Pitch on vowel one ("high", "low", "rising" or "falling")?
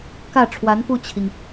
falling